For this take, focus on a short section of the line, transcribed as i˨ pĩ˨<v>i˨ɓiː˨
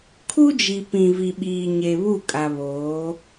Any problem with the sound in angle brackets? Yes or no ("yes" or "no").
no